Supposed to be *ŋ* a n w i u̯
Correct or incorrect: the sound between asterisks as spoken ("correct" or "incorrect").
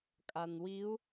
incorrect